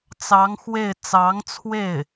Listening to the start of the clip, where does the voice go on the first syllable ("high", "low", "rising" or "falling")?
rising